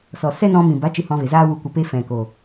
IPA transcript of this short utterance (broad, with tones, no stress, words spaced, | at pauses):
sɔ˨sɛ˦nɔ̃˧ mĩ˨ba˨˦ t͡ʃɨ˧hɔ̃˧ve˨zaː˦ wu˧kʷə˧pe˦ fɛ̃˨ko˨